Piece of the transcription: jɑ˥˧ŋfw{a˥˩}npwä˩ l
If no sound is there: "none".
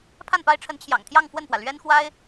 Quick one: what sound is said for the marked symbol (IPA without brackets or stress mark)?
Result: ə˥˩